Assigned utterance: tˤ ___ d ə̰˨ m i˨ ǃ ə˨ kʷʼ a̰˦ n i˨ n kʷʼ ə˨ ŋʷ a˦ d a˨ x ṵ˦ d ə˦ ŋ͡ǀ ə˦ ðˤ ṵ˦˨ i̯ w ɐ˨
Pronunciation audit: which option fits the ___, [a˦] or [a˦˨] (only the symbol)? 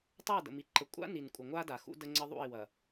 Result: a˦˨